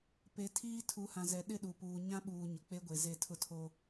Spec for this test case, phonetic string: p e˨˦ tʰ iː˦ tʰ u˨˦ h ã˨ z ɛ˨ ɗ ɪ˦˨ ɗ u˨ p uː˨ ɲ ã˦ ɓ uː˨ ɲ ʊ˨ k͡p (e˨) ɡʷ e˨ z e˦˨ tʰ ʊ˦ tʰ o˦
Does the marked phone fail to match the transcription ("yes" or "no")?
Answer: yes